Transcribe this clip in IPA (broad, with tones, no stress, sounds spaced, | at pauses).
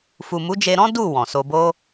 f u˨ m u˨˦ d͡ʒ e˧ ɾ ɔ̃˦ d u˦˨ w ɔ̃˨ s o˧ b o˦